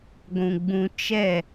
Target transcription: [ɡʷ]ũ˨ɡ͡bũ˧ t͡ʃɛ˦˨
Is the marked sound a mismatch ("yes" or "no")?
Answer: no